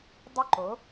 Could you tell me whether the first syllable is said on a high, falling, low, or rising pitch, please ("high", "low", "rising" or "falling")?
falling